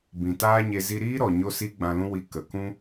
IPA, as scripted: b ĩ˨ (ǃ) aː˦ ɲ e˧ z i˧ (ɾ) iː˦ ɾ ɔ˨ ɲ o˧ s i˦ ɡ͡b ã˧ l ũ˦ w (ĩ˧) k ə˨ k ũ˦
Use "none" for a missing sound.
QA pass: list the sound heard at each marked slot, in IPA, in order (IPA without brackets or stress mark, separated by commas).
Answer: t, ɾ, i˧